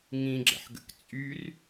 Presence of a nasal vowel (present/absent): present